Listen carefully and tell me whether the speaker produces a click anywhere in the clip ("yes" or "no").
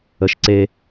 yes